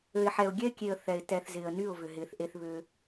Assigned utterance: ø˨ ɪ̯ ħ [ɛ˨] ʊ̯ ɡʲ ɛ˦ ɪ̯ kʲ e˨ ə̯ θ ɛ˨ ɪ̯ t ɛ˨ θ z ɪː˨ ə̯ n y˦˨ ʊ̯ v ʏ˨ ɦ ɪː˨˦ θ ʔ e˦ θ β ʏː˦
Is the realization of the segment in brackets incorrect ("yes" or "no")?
no